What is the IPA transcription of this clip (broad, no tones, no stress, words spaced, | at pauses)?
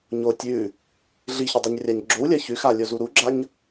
ɲo tʲʉ | ɮiçɵ dˤuɲrʲaɲɡ͡ǁowlʲɐ çʉxa lʲozuɾuɡ͡ǁaɲ